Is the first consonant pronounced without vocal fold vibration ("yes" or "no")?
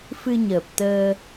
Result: yes